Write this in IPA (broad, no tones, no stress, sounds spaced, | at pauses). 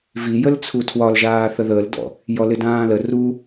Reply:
v i j ə l t͡sʰ u tʰ w ɒ l ʒ aː θ ə ð əː l d ɔ̰ | j ɔ l ɪ d ãː l ə r u